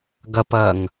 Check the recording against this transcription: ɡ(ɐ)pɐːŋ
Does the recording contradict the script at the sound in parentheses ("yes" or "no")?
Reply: no